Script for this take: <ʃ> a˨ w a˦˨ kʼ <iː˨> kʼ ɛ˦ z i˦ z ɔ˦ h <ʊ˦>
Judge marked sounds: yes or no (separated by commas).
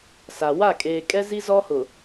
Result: no, no, no